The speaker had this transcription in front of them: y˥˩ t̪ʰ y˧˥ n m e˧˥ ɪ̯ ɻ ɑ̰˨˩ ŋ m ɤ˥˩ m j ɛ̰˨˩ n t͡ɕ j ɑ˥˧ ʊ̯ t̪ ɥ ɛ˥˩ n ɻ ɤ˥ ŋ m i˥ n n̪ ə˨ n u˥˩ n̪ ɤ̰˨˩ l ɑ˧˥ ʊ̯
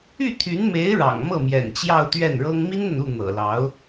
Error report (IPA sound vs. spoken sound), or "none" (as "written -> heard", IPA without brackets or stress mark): none